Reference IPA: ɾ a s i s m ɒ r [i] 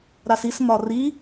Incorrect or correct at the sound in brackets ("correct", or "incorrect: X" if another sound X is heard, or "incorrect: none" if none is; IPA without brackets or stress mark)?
correct